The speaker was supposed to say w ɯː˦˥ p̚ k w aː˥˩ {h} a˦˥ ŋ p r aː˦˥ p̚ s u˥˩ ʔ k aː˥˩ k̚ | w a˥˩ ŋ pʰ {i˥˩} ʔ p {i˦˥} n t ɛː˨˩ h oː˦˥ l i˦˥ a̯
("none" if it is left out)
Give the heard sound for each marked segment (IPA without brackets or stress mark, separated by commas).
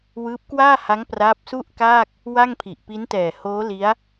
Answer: h, i˨˩, i˦˥